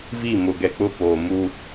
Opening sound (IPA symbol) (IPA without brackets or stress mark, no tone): v